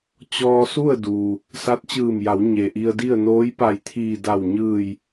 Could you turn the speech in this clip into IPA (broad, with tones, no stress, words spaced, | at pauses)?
t͡ɕɔː˧su˥˨ə̯ duː˩ | sa˧˥t̚t͡ɕɯː˧˩mja˩˧w ɲe˩ʔi˧ə̯di˥˨ə̯ noː˧˥jpa˧˩jt̪ʰiː˧˩ da˧˩wɲɯː˧˩j